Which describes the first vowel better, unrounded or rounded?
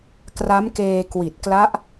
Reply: unrounded